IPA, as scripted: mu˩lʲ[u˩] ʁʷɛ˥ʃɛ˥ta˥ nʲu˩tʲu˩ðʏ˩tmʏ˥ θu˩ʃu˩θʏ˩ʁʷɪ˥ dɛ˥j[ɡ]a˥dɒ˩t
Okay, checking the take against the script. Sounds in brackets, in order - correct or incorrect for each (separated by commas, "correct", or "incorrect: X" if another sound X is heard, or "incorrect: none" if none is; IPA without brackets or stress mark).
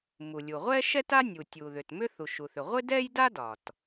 correct, incorrect: d